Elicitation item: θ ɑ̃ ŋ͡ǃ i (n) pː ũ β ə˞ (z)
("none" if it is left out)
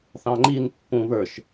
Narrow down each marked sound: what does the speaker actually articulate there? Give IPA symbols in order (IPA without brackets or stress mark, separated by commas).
n, ʃ